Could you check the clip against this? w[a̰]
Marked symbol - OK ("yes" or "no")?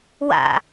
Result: yes